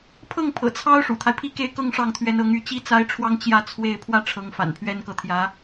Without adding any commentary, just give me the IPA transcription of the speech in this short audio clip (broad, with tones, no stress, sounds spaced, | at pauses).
pʰ ɤ˥˩ ŋ pʰ ɤ̰˨˩ t͡sʰ ɑ˥ ʊ̯ ʂ ṵ˨˩ t̪ʰ a˦ ɪ̯ pʰ i˥ k e˥˧ ɪ̯ k ɤ˥˧ ŋ ʂ ɑ˥˩ ŋ t̪ʰ ɥ ɛ˧˥ n ɤ˧˥ ŋ y˥˩ t͡ɕ i˥ t͡s a˥ ɪ̯ ʈ͡ʂʰ w ɑ˥ ŋ t͡ɕ j ä˥˧ t͡sʰ w e˥˧ ɪ̯ pʰ w ä˥˩ ʈ͡ʂʰ ɤ˧˥ ŋ f a̰˨˩ n pʰ ɥ ɛ˥ n k ɤ˧˥ t̪ʰ j ä˧˥